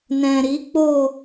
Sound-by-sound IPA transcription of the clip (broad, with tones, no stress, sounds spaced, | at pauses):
n ɛ̃˨ ɾ i˨˦ k͡p o˦˨